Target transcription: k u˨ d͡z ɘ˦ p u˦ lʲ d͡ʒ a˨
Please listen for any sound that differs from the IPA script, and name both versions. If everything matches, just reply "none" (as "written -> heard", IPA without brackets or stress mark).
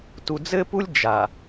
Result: k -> t